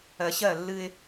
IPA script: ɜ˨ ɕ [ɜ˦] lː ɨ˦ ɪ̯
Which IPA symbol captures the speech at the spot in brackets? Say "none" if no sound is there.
ɜ˦˨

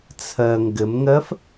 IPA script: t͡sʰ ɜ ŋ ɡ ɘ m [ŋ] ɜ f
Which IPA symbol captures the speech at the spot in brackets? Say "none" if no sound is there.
ŋ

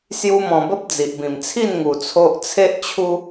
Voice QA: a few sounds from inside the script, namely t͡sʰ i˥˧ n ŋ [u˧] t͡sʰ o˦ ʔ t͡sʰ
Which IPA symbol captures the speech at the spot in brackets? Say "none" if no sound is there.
u˧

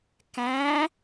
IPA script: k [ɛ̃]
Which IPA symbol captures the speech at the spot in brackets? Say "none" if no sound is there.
æ̃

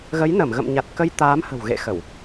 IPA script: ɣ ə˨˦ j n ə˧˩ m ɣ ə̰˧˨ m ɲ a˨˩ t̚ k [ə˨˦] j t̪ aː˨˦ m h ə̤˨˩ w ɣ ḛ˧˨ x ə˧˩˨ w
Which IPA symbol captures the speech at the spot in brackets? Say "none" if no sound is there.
ə˧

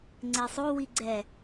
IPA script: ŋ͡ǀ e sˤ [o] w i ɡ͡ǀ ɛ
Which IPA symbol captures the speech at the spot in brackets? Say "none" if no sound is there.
o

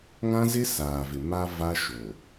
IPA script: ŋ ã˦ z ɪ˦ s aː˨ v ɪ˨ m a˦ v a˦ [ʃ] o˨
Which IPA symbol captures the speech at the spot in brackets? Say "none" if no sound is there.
ʃ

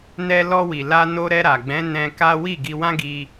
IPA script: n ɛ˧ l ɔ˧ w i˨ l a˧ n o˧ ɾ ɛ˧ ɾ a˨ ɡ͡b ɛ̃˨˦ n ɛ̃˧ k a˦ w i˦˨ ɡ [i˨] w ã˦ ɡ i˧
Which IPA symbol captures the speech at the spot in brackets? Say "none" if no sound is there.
i˧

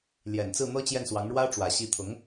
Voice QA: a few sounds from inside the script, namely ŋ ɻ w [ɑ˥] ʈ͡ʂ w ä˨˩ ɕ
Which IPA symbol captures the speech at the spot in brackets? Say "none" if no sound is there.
ä˥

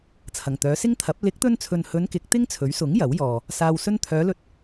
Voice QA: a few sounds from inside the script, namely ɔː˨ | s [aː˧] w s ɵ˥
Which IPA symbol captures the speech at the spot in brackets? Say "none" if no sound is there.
aː˧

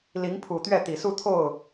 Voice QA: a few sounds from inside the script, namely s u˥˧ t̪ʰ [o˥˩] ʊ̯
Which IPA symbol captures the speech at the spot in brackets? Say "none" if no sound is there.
o˥˩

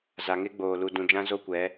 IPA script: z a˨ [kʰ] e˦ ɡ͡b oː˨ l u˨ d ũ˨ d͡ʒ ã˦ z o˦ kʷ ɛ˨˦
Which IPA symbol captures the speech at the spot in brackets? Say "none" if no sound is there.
ŋ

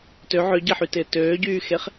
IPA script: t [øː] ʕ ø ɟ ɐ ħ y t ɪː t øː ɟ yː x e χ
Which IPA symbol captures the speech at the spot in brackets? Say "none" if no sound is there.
ø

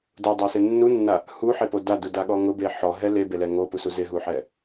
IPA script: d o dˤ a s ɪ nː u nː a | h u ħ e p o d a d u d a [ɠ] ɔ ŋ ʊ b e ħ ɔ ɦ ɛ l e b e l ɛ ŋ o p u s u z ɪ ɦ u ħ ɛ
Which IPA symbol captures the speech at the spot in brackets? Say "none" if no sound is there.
ɠ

